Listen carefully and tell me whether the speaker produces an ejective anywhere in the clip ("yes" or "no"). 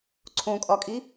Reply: yes